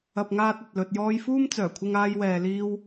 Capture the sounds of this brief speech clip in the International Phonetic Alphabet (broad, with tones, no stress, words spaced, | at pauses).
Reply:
ɐ˨p̚ŋaː˧t̚ ɐ˨t̚lɵ˧t̚ jɔː˧jfuː˥m t͡sœː˨˩kʷʰɪ˧ŋaː˧jwɛː˨ liː˧w